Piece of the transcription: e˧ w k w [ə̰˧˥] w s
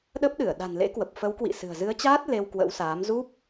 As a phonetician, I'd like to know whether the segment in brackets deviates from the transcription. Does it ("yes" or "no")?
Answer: no